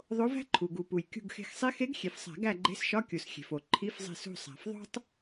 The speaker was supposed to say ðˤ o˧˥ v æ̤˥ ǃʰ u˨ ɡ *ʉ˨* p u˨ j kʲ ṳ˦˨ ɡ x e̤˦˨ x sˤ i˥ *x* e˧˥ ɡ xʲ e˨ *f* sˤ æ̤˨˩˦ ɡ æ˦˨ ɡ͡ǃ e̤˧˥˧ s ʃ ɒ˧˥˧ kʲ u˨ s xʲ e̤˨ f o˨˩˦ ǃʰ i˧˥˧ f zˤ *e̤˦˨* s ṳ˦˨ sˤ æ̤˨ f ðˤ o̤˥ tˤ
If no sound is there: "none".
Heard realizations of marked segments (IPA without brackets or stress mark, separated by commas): u˨, x, f, e̤˦˨